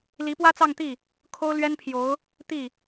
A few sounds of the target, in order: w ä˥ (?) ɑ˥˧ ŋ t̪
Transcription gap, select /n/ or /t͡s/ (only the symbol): t͡s